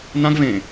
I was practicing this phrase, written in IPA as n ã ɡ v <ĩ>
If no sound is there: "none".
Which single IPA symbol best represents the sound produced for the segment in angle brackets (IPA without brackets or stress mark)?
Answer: ẽ